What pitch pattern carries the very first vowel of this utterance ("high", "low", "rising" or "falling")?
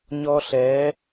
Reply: high